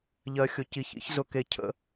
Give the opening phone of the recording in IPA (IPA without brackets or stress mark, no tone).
ʎ